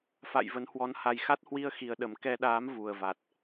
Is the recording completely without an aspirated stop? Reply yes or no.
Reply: yes